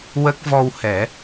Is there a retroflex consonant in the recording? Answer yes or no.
no